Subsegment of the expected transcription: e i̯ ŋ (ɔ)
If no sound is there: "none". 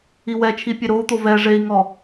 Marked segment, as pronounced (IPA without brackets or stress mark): ɔ